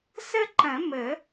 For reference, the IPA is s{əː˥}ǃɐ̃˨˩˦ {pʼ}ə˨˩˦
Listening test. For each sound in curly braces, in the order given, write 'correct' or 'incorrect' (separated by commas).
incorrect, incorrect